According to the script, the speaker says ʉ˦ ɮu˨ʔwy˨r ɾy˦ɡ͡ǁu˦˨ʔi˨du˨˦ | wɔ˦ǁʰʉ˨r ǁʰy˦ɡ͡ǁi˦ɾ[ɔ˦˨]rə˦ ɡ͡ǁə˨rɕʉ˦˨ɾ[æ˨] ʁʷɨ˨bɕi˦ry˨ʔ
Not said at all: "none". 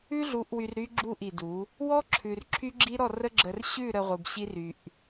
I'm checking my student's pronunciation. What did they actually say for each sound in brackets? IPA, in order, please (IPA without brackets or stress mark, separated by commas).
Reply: ɔ˦˨, ə˨